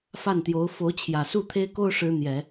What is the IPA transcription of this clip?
f a˥˩ n t̪ j o˧˥ ʊ̯ f o˧˥ ʊ̯ t͡ɕʰ j ä˨˩ s u˥˩ t̪ʰ e˥ ɪ̯ k o˥ ʊ̯ ʂ ɻ̩˥ n̪ j ɛ˨˩˦

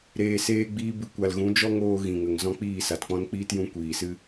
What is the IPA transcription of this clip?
ɾ eː˨ s eː˧ ɡ͡b iː˧ b ɨ˨ kʷ a˨ l ɣ ũ˨˦ d͡ʒ ɔ˦ ŋ oː˧ ɣ ĩ˨ ŋ ə˨ ŋ z ɔ̃˦ k͡p iː˦˨ s a˨ t k͡p ɔ̃˦ n k͡p iː˦ t j ũ˧ kʷ iː˨ s ɨ˦

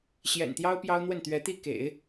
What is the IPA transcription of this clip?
ɕ j ɛ̰˨˩ n t̪ j ɑ˥ ʊ̯ p j ɑ˥ ʊ̯ n̪ w ə˥˩ n t̪ ɥ ɛ˧˥ t̪ i˥˩ k ḛ˨˩˦ ɪ̯

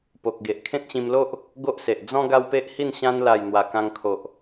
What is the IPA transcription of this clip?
p o˨ k̚ ɡ e˨ ʔ kʰ ẽ˦ t̚ ɕ ĩ˧ m l o˦ ʔ | ɡ o˦ ʔ s e˨ ʔ d͡z ɔ̃˦ ɡ a˦ w p e˦ ʔ h i˥˧ n ɕ ã˧ n l a˨˩ j n̪ w a˨˩ k ã˧ ŋ kʰ o˨ ʔ

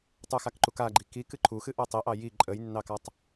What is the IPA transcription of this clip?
tˤ u x a k ǃ u k a ɡ͡ǃ i k i k ɨ ǃʰ u x ɨ ʔ o tˤ i ʔ ɑ j i ǃʼ ə j nː ɑ k a tˤ

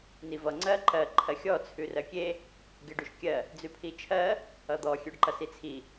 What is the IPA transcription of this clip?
n i v ʌ ŋ͡ǀ ɜ ǃ ɜ ǃʰ ɜ xʲ ɔ t͡sʰ ʉ r ɜ kʲ e | ɡ e ɖ ʉ ʃ kʲ ɜ | d͡z ʉ pʰ i t͡ʃʰ ɜ | ʌ d̪ ɔ xʲ ø ɖ ǃ ʌ s i t͡sʰ i

